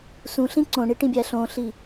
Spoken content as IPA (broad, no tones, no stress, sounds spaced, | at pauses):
s ũ ɬ ĩ ǀ õ ɳ i ʈ ĩ bʲ æ ɬ õ ɬ i